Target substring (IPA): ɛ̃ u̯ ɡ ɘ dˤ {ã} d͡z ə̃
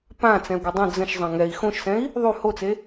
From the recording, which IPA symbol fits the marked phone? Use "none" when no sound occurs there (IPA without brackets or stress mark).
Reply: ə̃